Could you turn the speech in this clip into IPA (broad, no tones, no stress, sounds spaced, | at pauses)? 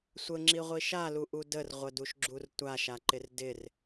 sʷ ə ŋ͡ǁ i ʁʷ i ʃ a l u ʔ u d ə r ʁʷ ə d u ʃ ɡ͡ǁ u r tʷ a ʃ a ǃ ɪ r d ɪ r